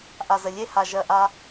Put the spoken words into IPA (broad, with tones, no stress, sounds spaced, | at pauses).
ʔ a˨ z ə˨ lʲ e˦ h a˨ ʒ ɜ˨ ʔ a˧